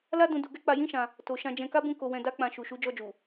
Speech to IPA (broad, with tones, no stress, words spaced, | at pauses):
la˦dũ˧ du˧ɡɛ˦ k͡pa˧jĩ˦ʃã˧ | to˨ʃã˧d͡ʒɛ̃˧ ka˦bũ˦˨ ko˧wɛ̃˧ da˦k͡pã˧ ʃu˨ʃu˨˦ d͡ʒɔ˧d͡ʒu˨